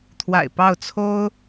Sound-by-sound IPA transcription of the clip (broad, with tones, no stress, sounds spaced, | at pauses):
t̪ʰ w a̰˨˩ ɪ̯ p ɑ˥˩ ʊ̯ t͡sʰ o˥ ʊ̯